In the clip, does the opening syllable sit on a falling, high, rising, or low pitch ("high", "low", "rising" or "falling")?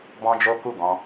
high